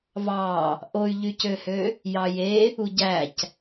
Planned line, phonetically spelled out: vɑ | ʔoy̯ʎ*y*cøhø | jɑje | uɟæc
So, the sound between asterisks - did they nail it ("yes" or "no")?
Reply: yes